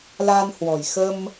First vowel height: low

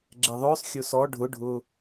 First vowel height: mid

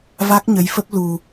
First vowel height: low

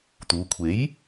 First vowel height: high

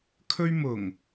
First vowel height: mid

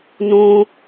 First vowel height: high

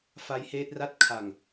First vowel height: low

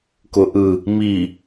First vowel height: high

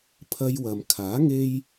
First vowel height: low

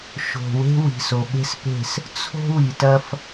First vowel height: mid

